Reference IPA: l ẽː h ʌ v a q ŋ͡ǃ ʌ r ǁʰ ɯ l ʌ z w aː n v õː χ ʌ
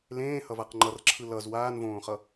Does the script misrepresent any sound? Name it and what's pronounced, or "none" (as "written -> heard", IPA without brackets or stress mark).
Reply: none